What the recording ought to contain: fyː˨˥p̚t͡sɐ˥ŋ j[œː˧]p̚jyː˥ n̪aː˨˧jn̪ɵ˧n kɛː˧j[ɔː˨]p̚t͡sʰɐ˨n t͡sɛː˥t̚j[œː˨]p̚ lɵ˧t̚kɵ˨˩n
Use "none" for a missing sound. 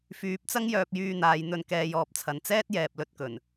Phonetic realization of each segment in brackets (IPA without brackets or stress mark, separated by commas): œː˥, ɔː˨, ɛː˨